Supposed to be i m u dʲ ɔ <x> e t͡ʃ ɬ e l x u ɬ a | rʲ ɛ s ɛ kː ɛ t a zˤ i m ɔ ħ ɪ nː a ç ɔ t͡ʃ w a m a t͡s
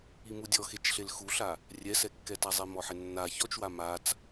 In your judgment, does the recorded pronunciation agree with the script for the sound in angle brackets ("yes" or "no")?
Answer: yes